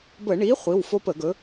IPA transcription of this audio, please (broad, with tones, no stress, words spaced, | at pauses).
bə˧˩˧ɳi˨˥ χʷi˩˧˩wfo˦ pə˧˩˧ɡɵ˨˥